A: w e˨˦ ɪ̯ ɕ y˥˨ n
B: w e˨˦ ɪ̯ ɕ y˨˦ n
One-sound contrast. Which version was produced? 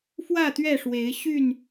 A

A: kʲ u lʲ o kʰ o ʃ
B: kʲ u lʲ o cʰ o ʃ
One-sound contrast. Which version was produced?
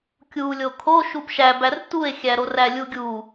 A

